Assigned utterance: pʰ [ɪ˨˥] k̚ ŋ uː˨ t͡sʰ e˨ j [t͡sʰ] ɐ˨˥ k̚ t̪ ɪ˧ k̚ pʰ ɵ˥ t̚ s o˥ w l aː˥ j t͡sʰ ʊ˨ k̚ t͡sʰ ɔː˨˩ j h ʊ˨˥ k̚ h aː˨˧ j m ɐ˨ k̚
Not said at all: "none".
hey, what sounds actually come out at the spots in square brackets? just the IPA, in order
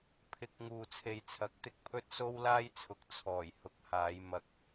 ɪ˨, t͡sʰ

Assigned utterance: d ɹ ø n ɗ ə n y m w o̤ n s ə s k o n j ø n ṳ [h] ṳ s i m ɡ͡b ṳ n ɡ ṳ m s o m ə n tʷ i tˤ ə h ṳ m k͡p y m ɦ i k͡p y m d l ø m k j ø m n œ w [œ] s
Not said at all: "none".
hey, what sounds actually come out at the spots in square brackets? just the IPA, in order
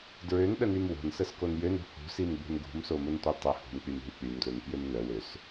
h, ø

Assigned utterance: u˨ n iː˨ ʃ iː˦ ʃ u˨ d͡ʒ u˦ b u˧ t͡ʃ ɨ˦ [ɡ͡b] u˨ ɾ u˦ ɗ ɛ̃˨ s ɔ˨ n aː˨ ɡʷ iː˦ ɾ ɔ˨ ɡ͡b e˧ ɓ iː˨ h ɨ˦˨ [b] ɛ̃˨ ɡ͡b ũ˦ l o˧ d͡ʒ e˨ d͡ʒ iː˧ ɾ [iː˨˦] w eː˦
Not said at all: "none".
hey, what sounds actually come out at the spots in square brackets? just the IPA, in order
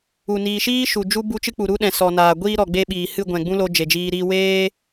k͡p, ɡʷ, iː˦

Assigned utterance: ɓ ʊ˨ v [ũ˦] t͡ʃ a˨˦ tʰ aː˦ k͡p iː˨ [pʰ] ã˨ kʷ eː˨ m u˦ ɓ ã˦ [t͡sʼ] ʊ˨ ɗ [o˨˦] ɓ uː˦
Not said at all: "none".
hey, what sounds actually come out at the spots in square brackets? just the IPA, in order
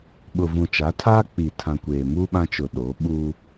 ũ˨, tʰ, t͡ʃ, o˨˦

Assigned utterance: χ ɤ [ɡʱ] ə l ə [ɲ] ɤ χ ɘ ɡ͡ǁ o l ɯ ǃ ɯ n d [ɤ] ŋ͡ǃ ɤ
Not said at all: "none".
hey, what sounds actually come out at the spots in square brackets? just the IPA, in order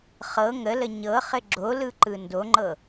ŋ, ɲ, o

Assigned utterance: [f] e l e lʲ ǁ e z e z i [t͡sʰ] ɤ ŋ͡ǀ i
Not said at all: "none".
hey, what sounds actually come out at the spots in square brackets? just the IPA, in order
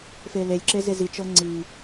f, t͡ʃ

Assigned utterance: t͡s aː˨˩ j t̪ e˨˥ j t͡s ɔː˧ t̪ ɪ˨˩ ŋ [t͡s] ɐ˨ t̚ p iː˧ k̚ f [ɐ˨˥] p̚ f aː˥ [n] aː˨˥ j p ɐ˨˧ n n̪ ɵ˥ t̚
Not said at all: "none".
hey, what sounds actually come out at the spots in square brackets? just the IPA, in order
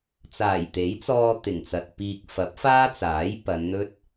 t͡s, ɐ˨˥, t͡s

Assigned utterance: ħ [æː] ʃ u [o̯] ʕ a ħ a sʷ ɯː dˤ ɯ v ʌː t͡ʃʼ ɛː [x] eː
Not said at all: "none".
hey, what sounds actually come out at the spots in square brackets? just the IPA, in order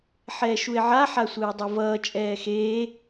ɛː, e̯, x

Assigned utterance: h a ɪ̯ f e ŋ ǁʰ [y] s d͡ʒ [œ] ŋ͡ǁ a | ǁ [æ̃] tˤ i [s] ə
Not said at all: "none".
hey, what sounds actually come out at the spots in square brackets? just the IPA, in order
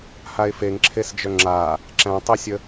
e, œ, æ̃, sʲ

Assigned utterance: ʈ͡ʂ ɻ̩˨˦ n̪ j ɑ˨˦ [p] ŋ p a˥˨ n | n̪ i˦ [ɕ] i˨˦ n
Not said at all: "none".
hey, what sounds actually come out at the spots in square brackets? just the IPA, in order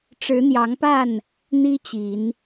none, t͡ɕ

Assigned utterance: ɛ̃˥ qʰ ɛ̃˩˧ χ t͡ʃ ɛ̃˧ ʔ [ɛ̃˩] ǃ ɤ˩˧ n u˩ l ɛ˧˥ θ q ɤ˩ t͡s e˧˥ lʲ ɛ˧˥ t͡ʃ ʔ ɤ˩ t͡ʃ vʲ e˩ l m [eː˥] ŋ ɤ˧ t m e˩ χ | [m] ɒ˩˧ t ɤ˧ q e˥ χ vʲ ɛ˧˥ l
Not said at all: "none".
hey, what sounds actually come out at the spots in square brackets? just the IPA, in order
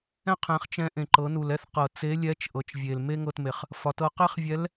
ẽ˩, e˥, f

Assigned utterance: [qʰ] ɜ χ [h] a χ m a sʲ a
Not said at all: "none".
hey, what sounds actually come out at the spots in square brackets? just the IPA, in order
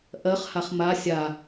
ʔ, h

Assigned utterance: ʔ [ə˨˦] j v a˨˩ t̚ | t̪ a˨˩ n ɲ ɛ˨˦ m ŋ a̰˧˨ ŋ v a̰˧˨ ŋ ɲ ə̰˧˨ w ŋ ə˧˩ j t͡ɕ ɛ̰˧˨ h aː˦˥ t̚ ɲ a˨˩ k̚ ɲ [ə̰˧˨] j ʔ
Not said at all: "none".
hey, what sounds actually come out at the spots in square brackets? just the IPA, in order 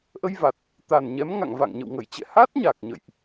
ə˧, ə̰˧˨

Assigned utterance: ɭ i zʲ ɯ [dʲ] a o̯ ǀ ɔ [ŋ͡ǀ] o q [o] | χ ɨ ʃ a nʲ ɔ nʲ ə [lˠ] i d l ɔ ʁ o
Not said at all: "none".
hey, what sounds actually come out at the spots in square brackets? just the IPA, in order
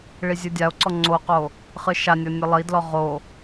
dʲ, ŋ͡ǀ, o, lˠ

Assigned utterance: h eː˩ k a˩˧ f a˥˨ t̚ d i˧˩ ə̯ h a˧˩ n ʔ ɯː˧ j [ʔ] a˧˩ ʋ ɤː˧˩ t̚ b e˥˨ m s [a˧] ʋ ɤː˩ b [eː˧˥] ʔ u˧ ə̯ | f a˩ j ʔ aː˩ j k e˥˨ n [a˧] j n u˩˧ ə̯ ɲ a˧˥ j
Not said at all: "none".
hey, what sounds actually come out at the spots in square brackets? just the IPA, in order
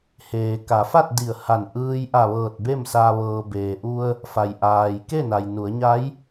ʔ, a˧, eː˩, a˩

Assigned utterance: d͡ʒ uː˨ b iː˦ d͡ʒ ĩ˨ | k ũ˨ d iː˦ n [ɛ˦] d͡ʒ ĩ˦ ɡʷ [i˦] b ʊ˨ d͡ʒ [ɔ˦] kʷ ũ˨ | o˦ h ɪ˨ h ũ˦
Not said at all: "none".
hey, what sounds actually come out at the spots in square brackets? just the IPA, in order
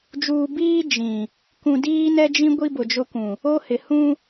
ɛ˦, i˦, ʊ˦

